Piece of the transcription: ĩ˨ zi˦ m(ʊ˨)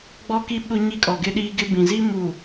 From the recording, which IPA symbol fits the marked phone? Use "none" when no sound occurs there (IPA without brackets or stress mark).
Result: u˨